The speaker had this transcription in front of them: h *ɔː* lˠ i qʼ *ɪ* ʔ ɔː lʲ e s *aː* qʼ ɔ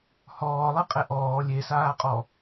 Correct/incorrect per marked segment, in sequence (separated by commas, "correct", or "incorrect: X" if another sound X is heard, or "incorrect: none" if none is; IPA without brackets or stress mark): correct, incorrect: ɛ, correct